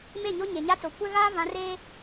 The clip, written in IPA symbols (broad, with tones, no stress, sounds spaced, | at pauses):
m e˦˨ ɲ o˦ ɲ e˨ ɲ a˦ t͡s o˨ kʷ ɛ˦ ɣ aː˦ v ã˨˦ r eː˦